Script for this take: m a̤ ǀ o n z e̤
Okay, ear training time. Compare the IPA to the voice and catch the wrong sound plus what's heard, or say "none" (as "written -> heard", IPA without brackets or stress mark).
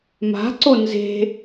none